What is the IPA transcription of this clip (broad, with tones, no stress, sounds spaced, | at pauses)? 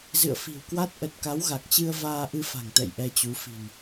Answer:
z ɨ̰˧˨ ə̯ f i̤˨˩ w k w a˦˥ t̚ ʔ ə˨˩ t̚ k a˨˦ w ɣ a˨˩ k̚ t͡ɕ ɨ˧ ə̯ v aː˧ ʔ ɨ˧ f a̤˨˩ ŋ t̪ ɛ̰˧˨ j ʔ ɛ˧ t͡ɕ u˨˦ f i̤˨˩ n